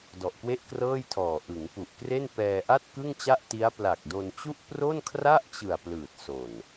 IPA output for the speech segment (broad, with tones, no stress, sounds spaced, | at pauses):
d ɔ˨˩ ʔ k w e˥˩ ʔ k r ɤː˥˩ j tʰ ɔː˨˩ ʔ ɯ˩˦ ŋ p u˨˩ ʔ k r e˥˩ n p ɛː˧ ʔ a˥˩ t̚ k ɯ˥˩ ŋ t͡ɕ a˥˩ ʔ t i˦˥ a̯ p l a˨˩ k̚ d o˧ n t͡ɕ u˥˩ ʔ p r o˥˩ n kʰ r a˥˩ ʔ t͡ɕ ɯ˨˩ a̯ p l ɯː˨˩ t̚ s o˨˩ n